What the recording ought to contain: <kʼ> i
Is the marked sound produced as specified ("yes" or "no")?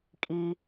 yes